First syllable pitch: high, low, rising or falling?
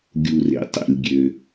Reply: low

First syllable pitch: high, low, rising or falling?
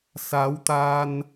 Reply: rising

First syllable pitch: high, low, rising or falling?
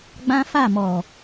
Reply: high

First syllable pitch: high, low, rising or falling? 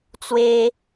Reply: high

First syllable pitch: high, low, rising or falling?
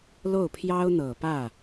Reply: falling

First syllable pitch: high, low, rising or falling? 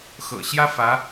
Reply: low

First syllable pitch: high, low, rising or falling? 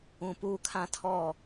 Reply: low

